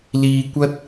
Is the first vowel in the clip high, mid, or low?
high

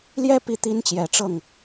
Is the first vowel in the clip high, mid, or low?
mid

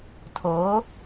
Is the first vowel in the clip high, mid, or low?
mid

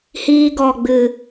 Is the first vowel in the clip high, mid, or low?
high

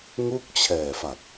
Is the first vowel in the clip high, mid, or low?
high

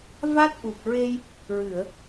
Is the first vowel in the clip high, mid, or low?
low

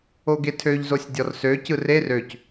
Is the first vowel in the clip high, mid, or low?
mid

